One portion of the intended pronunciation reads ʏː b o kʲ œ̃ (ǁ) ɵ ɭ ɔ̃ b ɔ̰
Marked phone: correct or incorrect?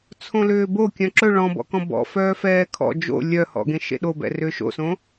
correct